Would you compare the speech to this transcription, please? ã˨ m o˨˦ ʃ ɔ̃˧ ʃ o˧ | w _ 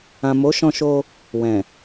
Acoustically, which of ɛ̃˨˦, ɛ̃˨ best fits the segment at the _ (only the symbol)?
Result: ɛ̃˨